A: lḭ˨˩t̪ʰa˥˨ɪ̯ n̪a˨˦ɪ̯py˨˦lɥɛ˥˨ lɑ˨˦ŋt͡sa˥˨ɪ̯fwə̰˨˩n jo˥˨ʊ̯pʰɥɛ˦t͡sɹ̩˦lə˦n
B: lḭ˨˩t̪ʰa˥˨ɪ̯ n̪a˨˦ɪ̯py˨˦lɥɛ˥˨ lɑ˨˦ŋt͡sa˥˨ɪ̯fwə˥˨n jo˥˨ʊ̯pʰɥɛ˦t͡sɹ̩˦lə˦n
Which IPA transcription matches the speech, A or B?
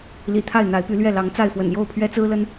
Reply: A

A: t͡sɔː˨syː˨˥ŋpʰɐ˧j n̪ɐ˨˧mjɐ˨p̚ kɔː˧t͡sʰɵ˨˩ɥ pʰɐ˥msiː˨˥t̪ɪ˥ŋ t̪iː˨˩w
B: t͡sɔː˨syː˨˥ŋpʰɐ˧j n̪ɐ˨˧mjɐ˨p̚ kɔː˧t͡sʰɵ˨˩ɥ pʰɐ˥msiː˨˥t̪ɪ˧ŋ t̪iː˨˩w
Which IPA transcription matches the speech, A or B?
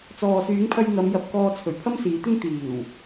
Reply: A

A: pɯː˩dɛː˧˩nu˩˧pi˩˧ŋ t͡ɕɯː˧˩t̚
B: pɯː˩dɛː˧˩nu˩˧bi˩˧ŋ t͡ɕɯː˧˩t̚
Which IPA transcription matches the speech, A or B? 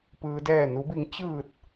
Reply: B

